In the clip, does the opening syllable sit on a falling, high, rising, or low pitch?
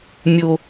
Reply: low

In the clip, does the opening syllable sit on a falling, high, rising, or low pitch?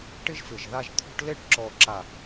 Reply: high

